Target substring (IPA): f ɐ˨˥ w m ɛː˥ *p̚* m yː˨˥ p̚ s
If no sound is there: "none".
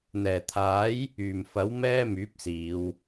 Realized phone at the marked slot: none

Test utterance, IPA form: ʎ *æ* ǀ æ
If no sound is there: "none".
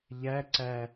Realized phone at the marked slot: æ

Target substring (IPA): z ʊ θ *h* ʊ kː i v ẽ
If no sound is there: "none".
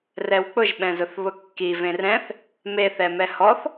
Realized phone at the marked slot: β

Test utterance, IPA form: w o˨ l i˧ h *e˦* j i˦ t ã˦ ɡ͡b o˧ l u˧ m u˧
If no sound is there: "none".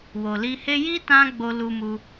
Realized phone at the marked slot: e˦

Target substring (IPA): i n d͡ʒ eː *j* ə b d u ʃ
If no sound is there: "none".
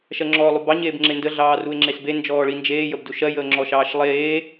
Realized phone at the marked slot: j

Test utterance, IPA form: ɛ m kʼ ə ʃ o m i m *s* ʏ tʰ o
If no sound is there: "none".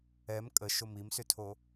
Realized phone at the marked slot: s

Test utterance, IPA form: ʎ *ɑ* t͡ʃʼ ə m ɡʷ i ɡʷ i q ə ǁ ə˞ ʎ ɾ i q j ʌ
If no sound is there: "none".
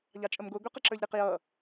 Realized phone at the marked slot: ɑ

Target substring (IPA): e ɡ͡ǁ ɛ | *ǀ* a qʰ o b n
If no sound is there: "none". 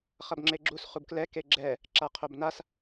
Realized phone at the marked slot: ǁ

